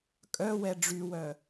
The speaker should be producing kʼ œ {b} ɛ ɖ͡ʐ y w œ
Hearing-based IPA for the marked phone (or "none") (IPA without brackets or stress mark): w